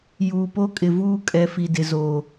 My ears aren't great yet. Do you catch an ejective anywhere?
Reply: yes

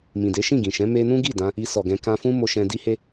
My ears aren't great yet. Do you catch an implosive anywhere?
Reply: no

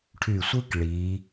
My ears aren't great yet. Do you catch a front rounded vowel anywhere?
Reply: yes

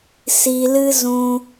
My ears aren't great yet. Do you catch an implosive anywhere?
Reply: no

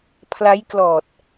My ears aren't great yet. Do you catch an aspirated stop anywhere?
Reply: yes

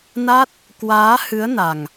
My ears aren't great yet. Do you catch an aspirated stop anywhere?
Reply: no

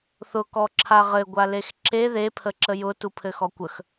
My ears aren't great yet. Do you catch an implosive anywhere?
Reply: no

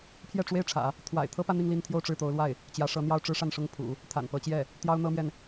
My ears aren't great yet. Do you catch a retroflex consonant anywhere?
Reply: yes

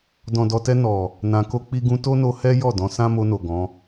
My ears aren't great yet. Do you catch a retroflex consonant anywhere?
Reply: no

